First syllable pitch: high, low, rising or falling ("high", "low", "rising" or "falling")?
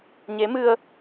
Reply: rising